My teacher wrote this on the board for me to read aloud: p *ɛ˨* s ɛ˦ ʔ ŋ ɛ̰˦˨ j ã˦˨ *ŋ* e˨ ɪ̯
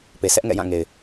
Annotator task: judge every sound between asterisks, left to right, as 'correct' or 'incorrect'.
incorrect: e˨, correct

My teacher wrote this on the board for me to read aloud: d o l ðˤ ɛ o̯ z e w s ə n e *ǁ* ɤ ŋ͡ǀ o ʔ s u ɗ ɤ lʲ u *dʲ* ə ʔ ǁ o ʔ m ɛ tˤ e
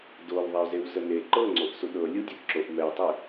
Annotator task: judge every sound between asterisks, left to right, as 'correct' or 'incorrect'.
incorrect: ǃ, correct

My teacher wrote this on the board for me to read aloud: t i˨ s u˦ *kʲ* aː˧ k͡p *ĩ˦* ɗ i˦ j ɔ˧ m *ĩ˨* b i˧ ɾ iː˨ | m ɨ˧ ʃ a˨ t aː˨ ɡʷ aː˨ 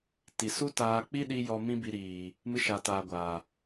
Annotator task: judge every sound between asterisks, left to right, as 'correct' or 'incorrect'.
incorrect: t, incorrect: i˦, incorrect: ĩ˦

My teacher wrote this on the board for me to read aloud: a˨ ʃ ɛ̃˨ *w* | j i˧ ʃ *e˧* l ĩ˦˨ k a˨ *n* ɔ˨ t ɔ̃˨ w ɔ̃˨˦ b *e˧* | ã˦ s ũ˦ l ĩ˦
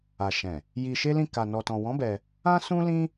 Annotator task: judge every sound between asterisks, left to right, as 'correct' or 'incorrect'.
incorrect: none, incorrect: e˦, correct, incorrect: ɛ˧

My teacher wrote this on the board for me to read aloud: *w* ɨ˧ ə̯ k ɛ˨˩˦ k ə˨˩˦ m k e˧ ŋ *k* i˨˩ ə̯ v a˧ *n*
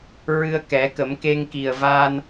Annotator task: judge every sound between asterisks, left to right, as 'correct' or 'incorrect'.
incorrect: ɹ, correct, correct

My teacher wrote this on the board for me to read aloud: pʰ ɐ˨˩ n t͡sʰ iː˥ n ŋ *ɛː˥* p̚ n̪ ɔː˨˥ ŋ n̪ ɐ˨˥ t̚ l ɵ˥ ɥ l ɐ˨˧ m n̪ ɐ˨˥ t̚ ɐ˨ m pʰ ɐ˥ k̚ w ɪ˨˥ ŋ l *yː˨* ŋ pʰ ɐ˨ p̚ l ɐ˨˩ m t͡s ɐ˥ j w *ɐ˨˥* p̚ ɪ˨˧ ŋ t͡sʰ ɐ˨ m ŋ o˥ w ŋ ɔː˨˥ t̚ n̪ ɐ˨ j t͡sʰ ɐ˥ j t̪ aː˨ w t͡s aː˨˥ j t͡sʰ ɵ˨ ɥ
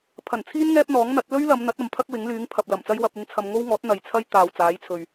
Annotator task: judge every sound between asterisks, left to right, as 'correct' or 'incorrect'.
correct, incorrect: yː˨˥, incorrect: ɐ˧

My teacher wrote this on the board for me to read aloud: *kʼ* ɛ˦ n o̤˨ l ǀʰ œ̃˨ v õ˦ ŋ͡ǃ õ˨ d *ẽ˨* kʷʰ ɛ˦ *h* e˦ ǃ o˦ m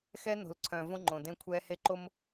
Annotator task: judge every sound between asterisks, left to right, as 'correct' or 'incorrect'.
incorrect: x, incorrect: ẽ˦, correct

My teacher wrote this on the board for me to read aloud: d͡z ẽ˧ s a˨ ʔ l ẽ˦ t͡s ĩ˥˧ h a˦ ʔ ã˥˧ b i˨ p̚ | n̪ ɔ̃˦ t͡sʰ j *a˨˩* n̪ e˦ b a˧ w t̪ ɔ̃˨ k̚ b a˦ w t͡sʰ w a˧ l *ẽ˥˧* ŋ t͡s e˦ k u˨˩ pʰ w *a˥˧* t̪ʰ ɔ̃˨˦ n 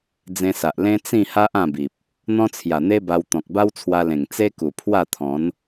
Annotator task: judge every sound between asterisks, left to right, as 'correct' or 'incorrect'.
correct, incorrect: ẽ˨˩, correct

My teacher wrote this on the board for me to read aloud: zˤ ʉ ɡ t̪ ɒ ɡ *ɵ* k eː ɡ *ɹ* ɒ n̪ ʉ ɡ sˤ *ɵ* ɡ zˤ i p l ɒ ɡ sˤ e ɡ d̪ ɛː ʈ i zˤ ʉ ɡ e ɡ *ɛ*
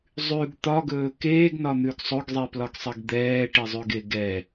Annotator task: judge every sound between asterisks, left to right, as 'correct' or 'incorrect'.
incorrect: ɵː, incorrect: n, correct, correct

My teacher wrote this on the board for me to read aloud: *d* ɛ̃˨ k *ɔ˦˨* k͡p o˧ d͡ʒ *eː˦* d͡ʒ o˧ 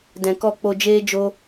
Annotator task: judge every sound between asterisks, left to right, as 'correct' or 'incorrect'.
correct, correct, correct

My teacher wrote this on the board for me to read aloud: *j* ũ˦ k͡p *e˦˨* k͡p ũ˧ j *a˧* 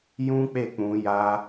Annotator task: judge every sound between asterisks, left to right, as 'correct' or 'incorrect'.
correct, correct, correct

